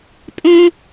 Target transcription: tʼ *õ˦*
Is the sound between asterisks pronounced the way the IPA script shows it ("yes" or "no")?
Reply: yes